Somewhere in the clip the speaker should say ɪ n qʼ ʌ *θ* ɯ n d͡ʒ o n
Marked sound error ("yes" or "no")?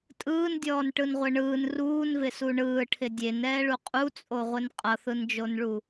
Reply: no